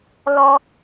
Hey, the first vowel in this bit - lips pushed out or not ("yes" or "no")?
yes